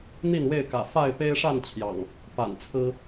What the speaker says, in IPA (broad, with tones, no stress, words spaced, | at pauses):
n̪i˥˨nwe˥˨ɪ̯kä̰˨˩ fa˥˨ɪ̯pe˦ɪ̯ʂa˥˨n t͡ɕʰjɑ̰˨˩ŋ | pa̰˨˩nt͡sʰɹ̩˦